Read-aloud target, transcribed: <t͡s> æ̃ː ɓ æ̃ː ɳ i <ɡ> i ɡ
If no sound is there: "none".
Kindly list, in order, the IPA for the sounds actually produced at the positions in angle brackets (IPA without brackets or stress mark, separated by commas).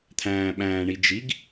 t̪ʰ, d͡ʒ